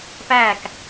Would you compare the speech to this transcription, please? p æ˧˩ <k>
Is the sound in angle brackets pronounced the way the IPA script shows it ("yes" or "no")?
yes